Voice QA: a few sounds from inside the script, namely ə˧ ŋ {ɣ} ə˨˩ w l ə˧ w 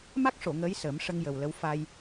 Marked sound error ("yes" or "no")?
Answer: yes